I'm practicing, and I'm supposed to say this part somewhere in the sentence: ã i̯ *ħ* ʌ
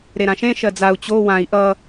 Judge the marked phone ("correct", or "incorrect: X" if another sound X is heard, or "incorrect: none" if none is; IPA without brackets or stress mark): incorrect: ʔ